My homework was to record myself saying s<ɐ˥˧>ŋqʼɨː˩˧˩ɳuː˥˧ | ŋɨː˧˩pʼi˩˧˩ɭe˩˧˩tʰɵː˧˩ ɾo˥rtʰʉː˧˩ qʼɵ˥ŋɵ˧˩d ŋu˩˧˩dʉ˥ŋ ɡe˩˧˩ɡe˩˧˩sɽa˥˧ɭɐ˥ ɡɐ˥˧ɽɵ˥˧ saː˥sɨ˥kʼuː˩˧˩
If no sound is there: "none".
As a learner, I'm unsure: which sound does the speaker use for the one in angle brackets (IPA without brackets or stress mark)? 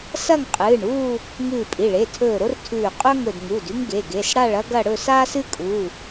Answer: ɐ˥˧